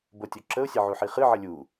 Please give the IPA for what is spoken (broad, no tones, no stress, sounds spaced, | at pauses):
b o tʲ o ǁ ə ʊ̯ sʲ ə ʕ u ħ i χ ɨ ʕ ə lʲ u